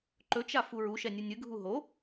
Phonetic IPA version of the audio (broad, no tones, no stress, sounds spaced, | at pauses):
ǃ ɵ t͡ʃ a f u ɹ u ʃ ɛ nʲ ɨ nʲ ɨ ɡʱ u ɦ o